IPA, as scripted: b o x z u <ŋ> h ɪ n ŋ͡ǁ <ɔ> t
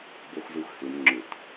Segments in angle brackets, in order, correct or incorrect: incorrect: x, incorrect: ʊ

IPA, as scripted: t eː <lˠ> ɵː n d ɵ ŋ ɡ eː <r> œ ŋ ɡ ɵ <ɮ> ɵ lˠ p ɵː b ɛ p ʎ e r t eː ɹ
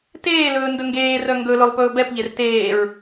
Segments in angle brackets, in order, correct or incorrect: incorrect: l, correct, incorrect: l

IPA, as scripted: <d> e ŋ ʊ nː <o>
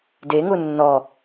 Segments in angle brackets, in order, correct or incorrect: correct, incorrect: ɔ

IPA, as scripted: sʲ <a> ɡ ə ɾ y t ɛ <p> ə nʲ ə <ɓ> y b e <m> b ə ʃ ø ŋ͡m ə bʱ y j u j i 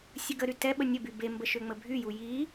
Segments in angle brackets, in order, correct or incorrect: incorrect: ə, incorrect: ɓ, incorrect: b, correct

